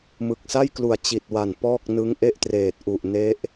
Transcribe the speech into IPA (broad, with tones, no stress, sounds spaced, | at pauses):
m ɯ˨˩ k̚ s a˥˩ j k l u˨˩ a̯ t͡ɕ i˨˩ t̚ w a˨˩ n p ɔː˥˩ k̚ n ɯ˦˥ ŋ ʔ e˥˩ ʔ t r eː˨˩ t̚ ʔ u˨˩ ʔ n e˦˥ ʔ